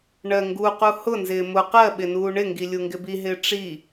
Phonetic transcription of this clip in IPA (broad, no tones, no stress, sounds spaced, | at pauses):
ɳ ɜ ŋ ɡ u q u h ʊ n z ɪː m ʊ q ɜ ɓ ɪ n uː ɳ ɪ ŋ ɡ i lʲ u ŋ ɡ ɪ b i ɦ ɪː ʈ͡ʂ i